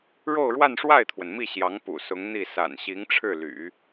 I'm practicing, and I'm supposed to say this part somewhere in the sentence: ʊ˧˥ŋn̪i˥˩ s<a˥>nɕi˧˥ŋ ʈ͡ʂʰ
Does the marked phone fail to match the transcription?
yes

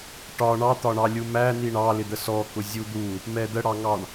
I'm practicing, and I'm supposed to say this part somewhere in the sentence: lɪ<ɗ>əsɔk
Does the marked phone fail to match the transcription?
yes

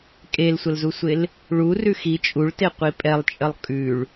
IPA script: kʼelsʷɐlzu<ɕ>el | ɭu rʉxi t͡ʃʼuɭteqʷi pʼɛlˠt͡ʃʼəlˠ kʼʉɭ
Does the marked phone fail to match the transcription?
yes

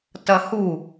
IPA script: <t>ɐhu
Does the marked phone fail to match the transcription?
no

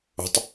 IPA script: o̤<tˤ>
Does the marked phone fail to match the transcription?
no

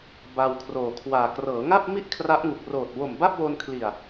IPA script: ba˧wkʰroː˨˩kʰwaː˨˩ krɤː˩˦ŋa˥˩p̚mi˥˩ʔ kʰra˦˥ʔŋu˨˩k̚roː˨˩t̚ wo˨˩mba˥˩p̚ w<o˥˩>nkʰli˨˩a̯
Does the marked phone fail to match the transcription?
yes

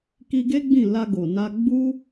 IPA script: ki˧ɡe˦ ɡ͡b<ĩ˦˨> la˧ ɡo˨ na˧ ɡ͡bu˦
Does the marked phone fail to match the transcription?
no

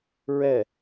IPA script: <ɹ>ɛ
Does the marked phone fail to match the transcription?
no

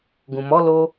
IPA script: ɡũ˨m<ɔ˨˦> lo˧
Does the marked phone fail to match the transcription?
no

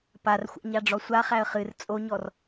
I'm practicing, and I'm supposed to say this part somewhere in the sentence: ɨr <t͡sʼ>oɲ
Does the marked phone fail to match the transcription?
no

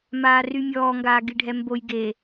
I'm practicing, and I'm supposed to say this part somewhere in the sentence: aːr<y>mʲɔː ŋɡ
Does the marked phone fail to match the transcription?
no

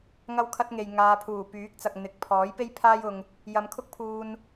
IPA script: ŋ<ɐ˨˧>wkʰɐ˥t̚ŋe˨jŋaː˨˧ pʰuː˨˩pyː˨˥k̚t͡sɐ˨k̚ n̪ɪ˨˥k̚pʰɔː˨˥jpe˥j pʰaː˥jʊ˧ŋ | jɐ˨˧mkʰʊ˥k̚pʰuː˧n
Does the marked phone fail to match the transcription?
yes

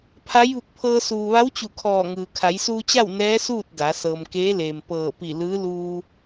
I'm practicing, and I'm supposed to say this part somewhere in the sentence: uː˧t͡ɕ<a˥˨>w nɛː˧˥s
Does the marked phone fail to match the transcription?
no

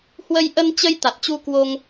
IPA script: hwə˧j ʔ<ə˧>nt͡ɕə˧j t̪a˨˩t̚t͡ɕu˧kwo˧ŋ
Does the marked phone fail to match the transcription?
no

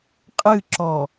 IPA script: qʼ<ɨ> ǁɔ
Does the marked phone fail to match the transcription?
no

